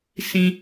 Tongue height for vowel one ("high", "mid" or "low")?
high